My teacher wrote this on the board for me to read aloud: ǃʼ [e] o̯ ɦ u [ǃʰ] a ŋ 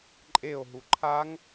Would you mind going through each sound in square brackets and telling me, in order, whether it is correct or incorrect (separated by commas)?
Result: correct, correct